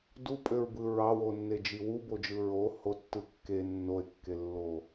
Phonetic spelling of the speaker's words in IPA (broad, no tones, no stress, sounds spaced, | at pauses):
d u pʼ ø ɹ b ɯ ɹ ɑ w o nː e d͡ʒ i w u b o d͡ʒ ɯ ɹ o h o tː ɯ kː e nː o e̯ kː e lː o